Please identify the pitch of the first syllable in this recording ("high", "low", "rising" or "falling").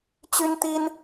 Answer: high